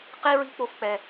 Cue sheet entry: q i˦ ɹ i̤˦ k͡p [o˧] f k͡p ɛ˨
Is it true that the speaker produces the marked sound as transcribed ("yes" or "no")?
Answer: yes